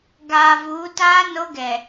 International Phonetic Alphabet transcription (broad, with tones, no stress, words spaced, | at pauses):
ɡaː˨vuː˨˦taː˦ no˦ɡɛ˨